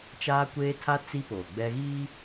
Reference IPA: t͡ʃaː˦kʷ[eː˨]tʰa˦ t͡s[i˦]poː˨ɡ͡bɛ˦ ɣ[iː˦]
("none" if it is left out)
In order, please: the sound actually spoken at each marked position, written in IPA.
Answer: eː˦, i˦, iː˦

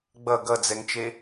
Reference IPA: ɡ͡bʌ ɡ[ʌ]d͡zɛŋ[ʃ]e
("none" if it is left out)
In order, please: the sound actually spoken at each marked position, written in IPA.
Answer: ʌ, t͡ʃ

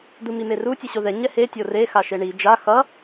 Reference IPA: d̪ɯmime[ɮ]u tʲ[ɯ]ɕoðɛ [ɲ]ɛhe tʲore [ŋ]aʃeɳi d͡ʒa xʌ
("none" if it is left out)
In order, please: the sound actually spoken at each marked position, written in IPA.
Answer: r, ɯ, ɲ, x

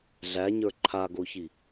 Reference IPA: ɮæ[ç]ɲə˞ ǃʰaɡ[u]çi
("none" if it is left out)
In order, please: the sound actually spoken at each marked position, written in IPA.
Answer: none, o

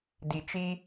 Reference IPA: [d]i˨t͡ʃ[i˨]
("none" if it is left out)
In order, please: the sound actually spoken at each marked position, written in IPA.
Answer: d, i˦

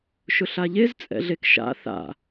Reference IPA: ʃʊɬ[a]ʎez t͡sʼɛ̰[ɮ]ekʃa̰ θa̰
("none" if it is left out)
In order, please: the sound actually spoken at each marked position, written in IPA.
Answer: a, ɮ

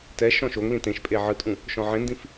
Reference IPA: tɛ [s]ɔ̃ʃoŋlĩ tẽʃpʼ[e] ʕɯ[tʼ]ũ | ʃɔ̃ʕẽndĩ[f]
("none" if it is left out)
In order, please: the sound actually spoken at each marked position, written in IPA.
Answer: ʃ, e, tʼ, f

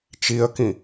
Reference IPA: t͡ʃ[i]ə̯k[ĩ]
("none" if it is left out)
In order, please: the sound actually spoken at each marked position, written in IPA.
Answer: i, ĩ

